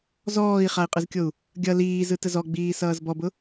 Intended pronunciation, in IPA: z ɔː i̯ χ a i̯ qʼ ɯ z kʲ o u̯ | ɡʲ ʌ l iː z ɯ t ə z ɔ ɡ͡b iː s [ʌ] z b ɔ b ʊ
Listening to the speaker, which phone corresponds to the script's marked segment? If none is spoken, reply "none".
ʌː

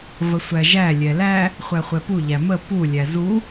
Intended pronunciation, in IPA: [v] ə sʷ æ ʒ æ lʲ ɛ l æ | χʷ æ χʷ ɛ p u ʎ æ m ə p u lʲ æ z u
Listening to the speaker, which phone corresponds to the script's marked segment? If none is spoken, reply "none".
v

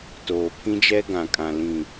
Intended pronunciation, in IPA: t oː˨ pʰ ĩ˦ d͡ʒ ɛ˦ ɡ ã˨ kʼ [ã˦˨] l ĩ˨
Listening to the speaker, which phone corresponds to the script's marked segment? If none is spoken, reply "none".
ã˨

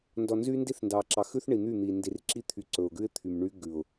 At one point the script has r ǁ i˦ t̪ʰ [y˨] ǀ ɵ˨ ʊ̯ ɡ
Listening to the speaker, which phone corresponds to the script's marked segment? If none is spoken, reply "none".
y˨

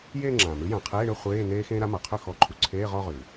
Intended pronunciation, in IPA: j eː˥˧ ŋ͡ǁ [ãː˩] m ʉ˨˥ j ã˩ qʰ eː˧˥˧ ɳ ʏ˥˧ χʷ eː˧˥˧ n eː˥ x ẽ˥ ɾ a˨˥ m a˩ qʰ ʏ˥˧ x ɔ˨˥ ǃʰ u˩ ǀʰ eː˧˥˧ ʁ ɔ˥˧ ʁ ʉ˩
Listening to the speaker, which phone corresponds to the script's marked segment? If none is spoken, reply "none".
ãː˩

